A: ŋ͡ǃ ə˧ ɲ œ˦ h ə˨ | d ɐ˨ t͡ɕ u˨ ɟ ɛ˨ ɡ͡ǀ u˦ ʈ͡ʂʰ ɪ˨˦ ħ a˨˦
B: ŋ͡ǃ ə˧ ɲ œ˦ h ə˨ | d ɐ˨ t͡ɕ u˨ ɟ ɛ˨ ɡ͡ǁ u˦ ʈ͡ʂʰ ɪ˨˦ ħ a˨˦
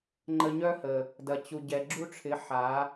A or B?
B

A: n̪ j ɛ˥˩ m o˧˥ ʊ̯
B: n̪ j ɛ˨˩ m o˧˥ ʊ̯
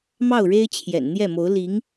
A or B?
A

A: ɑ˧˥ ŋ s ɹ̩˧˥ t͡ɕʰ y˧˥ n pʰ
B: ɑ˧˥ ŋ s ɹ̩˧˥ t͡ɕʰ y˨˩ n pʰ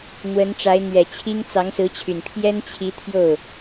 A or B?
B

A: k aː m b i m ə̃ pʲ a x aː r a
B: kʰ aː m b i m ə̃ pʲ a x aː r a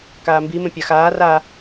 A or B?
A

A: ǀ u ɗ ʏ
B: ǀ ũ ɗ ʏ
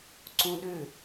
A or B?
B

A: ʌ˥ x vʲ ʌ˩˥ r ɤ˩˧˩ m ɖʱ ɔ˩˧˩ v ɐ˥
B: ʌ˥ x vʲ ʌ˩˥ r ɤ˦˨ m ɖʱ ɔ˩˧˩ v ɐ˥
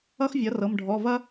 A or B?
A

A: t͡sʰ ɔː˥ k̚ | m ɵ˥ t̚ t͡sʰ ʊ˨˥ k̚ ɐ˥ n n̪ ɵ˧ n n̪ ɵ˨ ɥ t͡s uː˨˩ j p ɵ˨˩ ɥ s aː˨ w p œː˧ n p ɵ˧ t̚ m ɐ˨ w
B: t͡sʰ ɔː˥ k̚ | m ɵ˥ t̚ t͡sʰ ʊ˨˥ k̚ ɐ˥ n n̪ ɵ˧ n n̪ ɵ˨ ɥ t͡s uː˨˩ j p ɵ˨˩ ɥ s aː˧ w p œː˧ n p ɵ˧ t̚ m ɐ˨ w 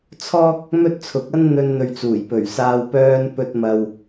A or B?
B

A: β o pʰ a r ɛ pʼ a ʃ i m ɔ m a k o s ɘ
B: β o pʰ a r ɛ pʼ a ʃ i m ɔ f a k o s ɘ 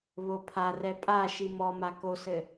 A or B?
A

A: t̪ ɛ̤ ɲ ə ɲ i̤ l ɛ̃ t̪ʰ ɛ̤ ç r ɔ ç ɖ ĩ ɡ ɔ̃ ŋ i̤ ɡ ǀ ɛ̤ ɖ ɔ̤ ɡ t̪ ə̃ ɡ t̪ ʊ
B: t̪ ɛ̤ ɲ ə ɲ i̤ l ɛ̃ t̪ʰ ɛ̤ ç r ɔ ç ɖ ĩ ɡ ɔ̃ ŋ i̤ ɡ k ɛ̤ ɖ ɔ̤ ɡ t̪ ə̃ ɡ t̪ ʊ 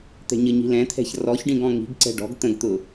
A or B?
A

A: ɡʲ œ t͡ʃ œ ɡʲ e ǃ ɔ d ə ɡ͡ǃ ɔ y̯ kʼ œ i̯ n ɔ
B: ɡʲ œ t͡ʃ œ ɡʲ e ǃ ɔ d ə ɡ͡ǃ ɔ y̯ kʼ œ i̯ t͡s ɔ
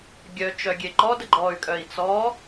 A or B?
B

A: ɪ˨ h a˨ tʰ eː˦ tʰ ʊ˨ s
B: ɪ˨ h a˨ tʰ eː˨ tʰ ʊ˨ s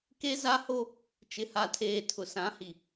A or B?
B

